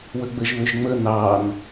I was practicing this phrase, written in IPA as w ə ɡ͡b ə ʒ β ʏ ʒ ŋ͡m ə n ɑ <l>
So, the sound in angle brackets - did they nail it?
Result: no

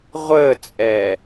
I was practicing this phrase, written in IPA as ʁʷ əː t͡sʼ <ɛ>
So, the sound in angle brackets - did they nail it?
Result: yes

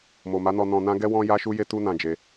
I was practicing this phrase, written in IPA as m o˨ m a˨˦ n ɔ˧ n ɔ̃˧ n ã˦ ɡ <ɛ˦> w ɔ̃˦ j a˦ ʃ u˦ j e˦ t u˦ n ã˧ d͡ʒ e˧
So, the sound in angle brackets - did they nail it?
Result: yes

